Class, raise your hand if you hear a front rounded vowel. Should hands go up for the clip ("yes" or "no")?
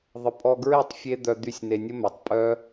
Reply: yes